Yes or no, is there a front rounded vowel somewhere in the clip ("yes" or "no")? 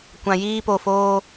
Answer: no